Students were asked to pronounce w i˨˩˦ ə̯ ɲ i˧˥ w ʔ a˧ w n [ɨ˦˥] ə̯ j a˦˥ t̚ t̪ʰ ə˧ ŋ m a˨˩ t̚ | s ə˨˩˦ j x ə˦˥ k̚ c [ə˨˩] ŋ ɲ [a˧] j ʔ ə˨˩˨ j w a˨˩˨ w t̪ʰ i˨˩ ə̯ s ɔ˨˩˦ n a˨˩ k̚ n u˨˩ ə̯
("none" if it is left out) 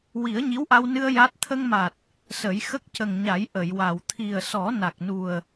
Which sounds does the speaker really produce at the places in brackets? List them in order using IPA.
ɨ˧, ə˨˩, a˨˩˦

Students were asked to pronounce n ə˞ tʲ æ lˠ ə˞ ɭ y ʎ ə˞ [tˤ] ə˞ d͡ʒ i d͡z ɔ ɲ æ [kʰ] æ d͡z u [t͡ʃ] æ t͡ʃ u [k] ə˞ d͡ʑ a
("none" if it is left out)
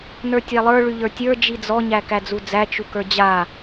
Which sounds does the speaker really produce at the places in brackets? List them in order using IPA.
tʲ, k, d͡z, k

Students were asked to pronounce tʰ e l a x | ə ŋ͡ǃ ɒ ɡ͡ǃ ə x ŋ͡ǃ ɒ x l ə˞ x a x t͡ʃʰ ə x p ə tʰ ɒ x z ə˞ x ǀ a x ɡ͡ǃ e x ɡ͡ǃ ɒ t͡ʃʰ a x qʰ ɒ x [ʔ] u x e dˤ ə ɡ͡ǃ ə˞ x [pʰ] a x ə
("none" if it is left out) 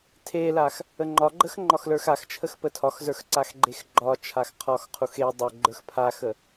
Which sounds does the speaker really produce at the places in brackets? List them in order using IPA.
qʰ, pʰ

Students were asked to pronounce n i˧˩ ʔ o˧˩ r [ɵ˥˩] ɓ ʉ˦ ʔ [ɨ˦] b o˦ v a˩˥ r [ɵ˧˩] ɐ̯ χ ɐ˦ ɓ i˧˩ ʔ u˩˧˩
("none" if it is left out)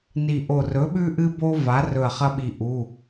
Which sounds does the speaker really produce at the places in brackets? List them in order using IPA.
ɵ˩˥, ɨ˦, ɵ˧˩

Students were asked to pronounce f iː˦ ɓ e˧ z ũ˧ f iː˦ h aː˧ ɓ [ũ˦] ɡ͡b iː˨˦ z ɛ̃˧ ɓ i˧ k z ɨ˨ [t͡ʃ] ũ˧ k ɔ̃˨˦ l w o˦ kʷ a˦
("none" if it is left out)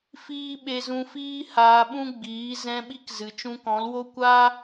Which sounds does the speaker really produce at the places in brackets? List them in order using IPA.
ũ˦, t͡ʃ

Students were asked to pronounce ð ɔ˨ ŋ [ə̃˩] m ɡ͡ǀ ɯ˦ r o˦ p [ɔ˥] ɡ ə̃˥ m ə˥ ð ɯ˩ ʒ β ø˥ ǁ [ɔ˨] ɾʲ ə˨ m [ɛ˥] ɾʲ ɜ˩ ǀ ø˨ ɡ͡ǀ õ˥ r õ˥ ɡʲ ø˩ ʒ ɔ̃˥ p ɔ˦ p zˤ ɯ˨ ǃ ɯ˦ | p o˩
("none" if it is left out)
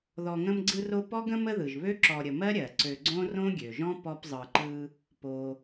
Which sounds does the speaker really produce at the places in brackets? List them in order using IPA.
ə̃˦, ɔ˥, ɔ˨, ɜ˥

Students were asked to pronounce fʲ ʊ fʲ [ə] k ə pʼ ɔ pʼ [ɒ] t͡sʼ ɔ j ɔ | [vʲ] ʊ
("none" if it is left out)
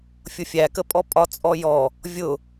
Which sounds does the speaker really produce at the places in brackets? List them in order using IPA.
æ, ɒ, vʲ

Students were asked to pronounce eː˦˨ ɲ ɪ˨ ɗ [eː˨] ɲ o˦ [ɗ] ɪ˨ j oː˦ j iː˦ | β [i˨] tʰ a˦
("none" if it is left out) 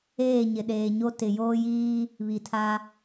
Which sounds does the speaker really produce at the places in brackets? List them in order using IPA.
eː˨, t, i˨

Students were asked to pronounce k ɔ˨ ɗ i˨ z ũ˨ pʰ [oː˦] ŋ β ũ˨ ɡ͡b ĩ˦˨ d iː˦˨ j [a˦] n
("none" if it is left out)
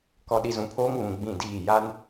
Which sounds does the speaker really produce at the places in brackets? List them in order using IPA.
oː˦, a˦

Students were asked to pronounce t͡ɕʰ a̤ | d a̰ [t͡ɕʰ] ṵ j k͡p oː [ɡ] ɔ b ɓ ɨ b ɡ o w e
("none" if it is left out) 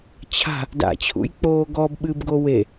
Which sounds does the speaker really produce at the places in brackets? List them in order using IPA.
t͡ɕʰ, ɡ

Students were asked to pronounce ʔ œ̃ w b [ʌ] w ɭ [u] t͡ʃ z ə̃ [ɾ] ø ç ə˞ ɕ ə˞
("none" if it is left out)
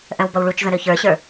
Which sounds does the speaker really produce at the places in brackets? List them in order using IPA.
ʌ, u, ɾ

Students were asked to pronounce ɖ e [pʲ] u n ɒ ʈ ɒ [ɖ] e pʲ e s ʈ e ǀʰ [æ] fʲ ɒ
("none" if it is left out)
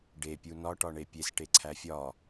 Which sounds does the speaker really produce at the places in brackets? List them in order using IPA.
pʲ, ɳ, æ

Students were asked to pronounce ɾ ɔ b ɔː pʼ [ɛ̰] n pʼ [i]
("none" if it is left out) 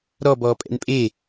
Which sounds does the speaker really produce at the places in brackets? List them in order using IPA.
ɛ̰, e

